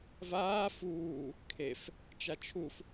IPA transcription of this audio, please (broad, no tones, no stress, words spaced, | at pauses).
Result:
vaː fuː | kʰef | t͡ʃat͡ʃʰuf